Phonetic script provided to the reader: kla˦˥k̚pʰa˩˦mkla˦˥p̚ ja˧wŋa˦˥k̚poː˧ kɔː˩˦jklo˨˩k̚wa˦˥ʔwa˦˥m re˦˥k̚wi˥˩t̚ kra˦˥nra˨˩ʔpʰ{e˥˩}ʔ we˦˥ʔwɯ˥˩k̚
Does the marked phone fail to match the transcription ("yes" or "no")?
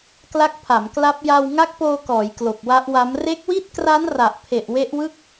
yes